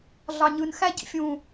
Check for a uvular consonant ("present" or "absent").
absent